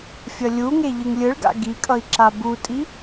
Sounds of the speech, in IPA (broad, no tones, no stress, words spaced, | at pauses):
fʲʌlʲuŋe ʎɯŋlʲɯɭɡa̰ ɡikʼʌi̯ ǁabutʼi